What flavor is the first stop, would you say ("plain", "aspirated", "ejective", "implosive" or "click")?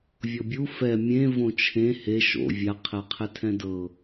plain